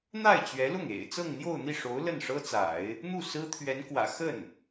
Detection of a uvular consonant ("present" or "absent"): absent